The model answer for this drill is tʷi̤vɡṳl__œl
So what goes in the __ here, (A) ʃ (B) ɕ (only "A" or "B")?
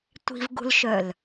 A